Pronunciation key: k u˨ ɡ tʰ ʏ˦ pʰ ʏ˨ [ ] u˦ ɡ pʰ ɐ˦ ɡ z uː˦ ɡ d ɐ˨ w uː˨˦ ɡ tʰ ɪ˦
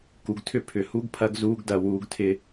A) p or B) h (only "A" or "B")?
B